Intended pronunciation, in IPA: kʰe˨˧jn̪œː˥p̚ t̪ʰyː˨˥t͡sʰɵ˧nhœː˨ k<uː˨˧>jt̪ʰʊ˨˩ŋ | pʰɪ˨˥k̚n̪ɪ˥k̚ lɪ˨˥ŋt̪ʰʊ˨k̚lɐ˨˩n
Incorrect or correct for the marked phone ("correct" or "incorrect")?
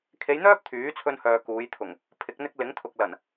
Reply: correct